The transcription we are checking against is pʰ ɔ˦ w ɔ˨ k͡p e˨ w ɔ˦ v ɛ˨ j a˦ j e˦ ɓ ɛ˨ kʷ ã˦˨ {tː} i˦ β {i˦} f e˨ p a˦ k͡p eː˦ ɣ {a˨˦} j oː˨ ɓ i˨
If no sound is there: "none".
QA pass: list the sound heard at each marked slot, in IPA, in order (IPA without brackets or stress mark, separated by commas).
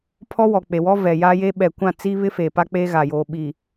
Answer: t͡s, ɪ˦, a˨